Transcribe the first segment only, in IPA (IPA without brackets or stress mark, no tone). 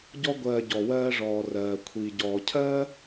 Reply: ɟ